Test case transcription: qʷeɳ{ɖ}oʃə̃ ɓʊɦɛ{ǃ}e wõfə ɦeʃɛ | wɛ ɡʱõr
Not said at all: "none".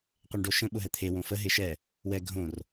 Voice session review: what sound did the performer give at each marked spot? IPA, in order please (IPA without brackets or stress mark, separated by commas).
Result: ɖ, t̪ʰ